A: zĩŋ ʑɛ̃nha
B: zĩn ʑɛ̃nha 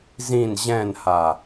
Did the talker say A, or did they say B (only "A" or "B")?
B